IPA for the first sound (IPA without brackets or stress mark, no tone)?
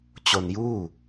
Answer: t͡ɕ